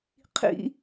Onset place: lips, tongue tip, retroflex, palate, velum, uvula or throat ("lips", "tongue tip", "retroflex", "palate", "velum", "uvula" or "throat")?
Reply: uvula